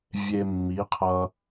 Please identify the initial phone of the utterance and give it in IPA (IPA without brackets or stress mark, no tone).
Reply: vʲ